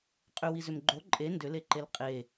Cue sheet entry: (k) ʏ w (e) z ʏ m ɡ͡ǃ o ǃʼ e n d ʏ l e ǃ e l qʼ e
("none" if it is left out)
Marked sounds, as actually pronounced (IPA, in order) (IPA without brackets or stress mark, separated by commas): qʼ, i